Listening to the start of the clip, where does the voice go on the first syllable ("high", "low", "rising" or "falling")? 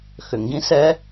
low